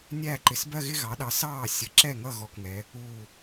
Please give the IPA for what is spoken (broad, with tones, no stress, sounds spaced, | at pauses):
nʲ æː˥˩ ǃ ɪ˩˧˩ s b ɜ˥˧ ɣ ɪ˥˧ ɣ ɑ˩˥ ɗ ɑ˩˥ s ɑː˥˩ sʲ ə˩˥ ǁ ɛ˥˩ ŋ ʌ˥˩ ɣ ɔ˥˩ k ŋ ɛ˩˥ | uː˥˩